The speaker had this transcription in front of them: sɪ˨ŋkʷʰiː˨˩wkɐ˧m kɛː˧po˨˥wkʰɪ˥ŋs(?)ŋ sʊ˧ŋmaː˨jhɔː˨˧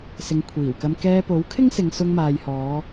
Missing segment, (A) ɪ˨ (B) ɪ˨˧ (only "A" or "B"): B